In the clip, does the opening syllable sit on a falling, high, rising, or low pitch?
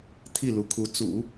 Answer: falling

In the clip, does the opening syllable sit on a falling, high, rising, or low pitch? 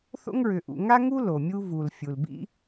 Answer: high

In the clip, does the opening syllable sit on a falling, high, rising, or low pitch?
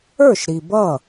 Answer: falling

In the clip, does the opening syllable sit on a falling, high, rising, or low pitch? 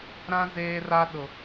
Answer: high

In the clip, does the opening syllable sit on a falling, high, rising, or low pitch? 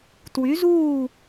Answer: rising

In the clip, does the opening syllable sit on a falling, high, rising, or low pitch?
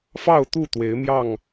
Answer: falling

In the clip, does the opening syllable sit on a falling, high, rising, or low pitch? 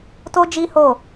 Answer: high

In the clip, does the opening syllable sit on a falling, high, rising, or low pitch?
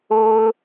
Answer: high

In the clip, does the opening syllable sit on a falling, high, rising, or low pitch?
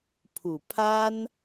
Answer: low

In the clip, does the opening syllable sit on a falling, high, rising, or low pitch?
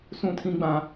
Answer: high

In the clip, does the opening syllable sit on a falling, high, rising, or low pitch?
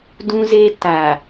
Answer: high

